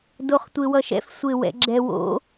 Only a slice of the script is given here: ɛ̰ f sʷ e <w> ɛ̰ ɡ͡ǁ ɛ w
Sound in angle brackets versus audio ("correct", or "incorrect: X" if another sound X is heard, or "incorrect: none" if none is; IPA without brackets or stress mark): correct